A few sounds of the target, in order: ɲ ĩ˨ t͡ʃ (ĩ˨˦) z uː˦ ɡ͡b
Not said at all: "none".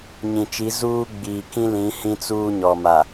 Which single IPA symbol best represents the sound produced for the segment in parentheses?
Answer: i˨˦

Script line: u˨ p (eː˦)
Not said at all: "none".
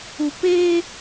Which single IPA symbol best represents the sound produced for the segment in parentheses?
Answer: eː˦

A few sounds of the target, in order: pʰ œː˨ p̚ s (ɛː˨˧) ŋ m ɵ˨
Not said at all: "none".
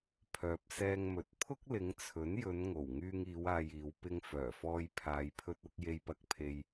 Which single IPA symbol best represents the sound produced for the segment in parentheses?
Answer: ɛː˧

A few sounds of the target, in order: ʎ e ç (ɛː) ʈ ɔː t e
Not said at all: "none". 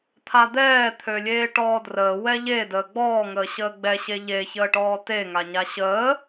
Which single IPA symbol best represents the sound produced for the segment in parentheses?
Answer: əː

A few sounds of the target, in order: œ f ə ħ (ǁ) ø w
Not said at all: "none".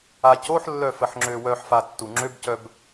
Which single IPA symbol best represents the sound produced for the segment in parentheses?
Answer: ŋ͡ǁ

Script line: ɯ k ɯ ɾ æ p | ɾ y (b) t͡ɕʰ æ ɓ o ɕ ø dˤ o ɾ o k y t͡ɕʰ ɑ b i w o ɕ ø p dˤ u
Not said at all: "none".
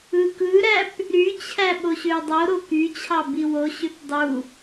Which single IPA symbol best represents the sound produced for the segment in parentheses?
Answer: none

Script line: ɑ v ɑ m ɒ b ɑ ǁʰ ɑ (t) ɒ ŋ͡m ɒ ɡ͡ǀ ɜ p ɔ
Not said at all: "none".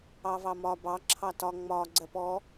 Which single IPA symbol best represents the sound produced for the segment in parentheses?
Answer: t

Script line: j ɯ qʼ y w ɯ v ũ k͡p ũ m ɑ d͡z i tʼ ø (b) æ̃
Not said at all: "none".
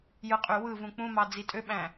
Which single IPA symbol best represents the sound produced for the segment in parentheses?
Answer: ɓ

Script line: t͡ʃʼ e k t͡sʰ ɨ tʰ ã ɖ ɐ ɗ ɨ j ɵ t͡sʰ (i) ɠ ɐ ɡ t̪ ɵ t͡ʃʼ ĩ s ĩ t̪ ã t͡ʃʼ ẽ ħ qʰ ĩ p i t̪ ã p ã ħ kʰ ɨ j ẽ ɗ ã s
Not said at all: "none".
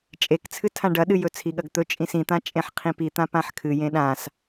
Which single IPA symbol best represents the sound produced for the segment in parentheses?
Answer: i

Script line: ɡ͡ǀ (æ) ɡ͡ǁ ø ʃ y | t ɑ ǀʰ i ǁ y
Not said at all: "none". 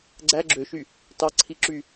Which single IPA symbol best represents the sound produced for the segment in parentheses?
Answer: æ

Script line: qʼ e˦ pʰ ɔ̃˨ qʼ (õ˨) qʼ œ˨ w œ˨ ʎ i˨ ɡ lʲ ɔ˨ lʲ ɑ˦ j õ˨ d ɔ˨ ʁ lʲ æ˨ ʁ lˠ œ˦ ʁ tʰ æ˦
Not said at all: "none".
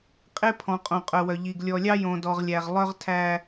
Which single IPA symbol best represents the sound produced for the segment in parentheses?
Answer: õ˨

